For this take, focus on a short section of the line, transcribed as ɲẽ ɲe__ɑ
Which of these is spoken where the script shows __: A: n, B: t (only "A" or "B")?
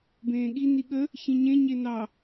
A